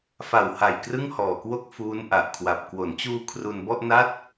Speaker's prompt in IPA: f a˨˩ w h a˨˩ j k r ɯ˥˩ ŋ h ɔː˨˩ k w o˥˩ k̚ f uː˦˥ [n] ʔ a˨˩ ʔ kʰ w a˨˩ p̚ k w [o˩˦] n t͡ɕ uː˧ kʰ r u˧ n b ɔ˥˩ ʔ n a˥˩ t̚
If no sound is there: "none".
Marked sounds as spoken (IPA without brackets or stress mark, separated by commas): n, o˩˦